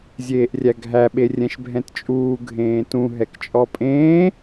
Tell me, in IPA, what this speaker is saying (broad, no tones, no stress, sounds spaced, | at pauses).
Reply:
zʲ eː ʔ rʲ æ ɡʱ æ ɓ e rʲ ɛ̃ ʃ bʱ ɛ̃ t t͡ʃʼ uː ɡʱ ẽː t ũ ɦ ɛ k t͡ʃʼ ɔ pʼ ẽː